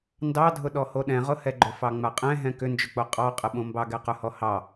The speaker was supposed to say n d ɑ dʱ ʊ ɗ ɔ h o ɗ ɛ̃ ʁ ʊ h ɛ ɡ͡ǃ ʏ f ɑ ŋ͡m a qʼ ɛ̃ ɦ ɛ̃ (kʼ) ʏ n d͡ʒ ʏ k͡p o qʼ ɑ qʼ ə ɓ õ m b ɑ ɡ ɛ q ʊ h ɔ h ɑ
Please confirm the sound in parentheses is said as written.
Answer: no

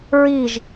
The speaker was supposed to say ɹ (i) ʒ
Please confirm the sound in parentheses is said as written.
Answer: yes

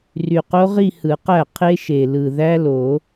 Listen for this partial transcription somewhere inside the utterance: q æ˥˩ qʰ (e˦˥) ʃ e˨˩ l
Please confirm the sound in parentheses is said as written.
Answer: yes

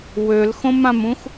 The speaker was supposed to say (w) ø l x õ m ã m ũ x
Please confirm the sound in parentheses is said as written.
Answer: yes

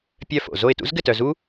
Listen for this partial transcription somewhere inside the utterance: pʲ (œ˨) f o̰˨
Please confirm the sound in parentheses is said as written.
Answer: no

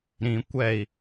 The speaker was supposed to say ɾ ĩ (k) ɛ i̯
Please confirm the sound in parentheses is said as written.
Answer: no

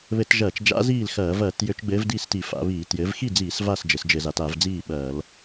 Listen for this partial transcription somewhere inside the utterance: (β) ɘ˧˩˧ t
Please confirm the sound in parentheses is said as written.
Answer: yes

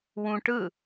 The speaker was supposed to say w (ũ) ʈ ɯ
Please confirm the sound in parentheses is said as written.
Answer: yes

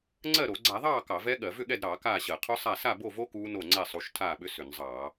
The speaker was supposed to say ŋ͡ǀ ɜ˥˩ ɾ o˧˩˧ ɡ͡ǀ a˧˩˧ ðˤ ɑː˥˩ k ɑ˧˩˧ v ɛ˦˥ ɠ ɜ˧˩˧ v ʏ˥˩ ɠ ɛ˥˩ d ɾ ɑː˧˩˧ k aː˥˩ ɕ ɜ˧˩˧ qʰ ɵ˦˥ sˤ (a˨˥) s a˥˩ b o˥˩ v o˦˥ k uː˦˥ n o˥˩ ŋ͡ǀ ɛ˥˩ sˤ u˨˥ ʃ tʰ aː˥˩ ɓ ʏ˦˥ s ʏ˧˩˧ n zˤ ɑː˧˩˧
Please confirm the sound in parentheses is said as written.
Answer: no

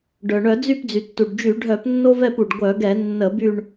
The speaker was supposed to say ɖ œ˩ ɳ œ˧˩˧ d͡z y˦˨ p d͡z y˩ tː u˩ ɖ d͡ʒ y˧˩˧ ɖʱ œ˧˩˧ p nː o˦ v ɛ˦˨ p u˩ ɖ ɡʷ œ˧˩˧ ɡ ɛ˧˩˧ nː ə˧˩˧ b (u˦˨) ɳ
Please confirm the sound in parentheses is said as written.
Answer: no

